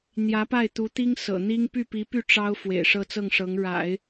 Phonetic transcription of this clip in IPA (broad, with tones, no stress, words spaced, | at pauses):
n̪jä˧˥pa˥˩ɪ̯t̪u˧˥t̪i˥ŋ sɤ̰˨˩n̪i˥ŋ py˥˩pi˧˥py˥˩ ʈ͡ʂɑ˥ʊ̯ fwḛ˨˩ɪ̯ʂɤ˥˧t͡sɤ˥˩ŋʂɤ˧˥ŋ ɻa̰˨˩˦ɪ̯